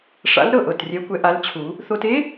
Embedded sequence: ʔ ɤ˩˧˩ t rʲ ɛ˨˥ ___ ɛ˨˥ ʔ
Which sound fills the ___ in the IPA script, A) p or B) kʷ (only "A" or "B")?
B